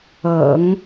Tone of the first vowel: low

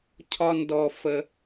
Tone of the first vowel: high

